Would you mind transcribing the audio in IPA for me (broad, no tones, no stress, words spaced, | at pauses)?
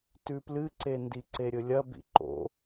tʉplɨǀe ndiǀeɾʲɵlʲɐ bḭǃo̰